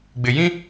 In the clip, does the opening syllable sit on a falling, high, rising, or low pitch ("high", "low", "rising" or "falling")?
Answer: low